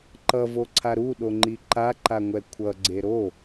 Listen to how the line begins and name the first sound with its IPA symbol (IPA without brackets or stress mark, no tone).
ǃ